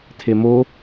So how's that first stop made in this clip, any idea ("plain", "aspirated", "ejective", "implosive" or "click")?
aspirated